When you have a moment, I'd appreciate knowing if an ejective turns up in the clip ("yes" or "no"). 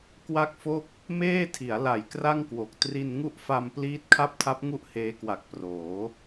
no